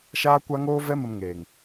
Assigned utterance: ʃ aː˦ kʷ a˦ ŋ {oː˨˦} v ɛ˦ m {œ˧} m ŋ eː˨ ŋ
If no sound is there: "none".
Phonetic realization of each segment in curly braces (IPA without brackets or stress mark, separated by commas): oː˦, ə˧